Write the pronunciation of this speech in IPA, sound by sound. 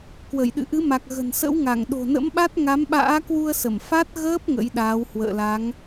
kwə˧˩jɗɨ̰˧˨ ʔɨ˨˦ma˨˩k̚ ɣə̤˨˩nsə̰˧˥wŋa˧˩ŋ ɗo̤˨˩nə̰˧˥mɓa˦˥t̚ ŋa˨˦mɓa̰ː˧˥kwu˧ə̯sə˧˩m fa˦˥t̚ɣəː˦˥p̚ ŋə̰˧˥jɗaː˨˦w hwə̰ː˧˨la˨˦ŋ

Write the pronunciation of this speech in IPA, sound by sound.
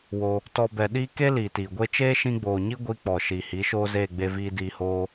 wo˧ | tɔ˧ bɛ˧ ɗiː˦ ke˦ liː˨tiː˨ɡʷe˦ t͡ʃeː˦ʃĩ˧ɡ͡boː˨ɲi˦ ɡʷi˧k͡pɔ˨ʃi˨ hi˨˦ʃoː˦zeː˦˨ ɡ͡be˧viː˧ diː˧hoː˦

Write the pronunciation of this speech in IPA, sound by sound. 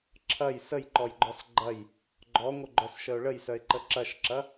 ǁʰɐj səjǃɔjɡ͡ǃɔs ɡ͡ǃɐj | ɡ͡ǃɔŋʷəɡ͡ǃœsʃəʊ̯ ɭəjsœɪ̯ǃə ǁɐʃǁɐ

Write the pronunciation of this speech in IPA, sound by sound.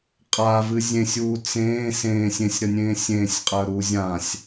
qʼavɨ zʲẽsʲuː t͡sẽː sẽːsʲ ẽsʲɾənʲẽː sʲẽːsʲqʼəːɾuː zʲãsʲ

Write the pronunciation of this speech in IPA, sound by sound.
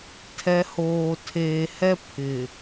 tʰɛ˨˦hoː˨ tʰeː˨hɛ˦ pʰɪ˨

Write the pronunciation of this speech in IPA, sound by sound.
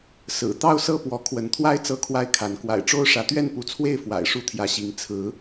sɹ̩˨˩ t̪ɑ˥˨ʊ̯sɤ˥˨pwɔ˨˦ kʰwə˨˦nt̪ʰwa˦ɪ̯ t͡sɤ˥˨kʰwa˥˨ɪ̯kʰa˨˦n kwa̰˨˩ɪ̯ʈ͡ʂo˦ʊ̯ ʂä˨˦t̪ɥɛ˥˨npu˨˦t͡sʰwe˥˨ɪ̯ fwa̰˨˩ɪ̯ʂu˥˨t̪ʰjä˨˦ɕi˨˦ŋ t͡sʰɹ̩˨˦

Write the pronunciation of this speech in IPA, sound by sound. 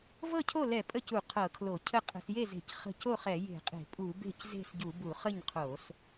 vɤ˥˩cʰo˥˩lɛ˧˩˧ pʼə˥˩cu˧˩˧ qʰɤ˧˩˧kʰlo˧˩˧cʰə˥˩ qʼə̤˧˩˧sje˥˩ze̤˧˩˧c χə̤˥˩ co˥˩χɛ˧˩˧ je̤˧˩˧qʼe̤˧˩˧ pʼu˧˩˧be̤˥˩c ze̤˥˩sɟu˧˩˧bu˧˩˧ χə˥˩ɲqʰo˧˩˧s

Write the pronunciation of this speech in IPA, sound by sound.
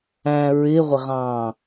æ̃ ɹɪʁʷɪʁɑ̃ː

